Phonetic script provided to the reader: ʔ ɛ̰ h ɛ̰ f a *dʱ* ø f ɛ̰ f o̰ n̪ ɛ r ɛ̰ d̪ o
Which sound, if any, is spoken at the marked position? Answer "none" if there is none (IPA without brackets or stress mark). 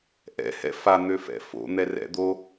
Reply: n̪